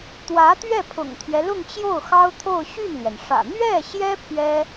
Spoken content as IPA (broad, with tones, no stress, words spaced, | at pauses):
t̪wä˧˥t̪ɥɛ˥˩pʰʊ̰˨˩ŋt̪ʰɥɛ˦ lʊ˥˧ŋt͡ɕjo˥˩ʊ̯xɑ˥ʊ̯t̪ʰo˥˧ʊ̯ ɕy˥˩nlɥɛ˩nʂä̰˨˩ n̪ɥɛ˥˩ɕjɛ˥ pʰɥɛ˥